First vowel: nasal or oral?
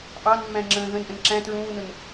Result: oral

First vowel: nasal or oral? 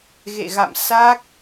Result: oral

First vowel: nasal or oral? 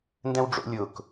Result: nasal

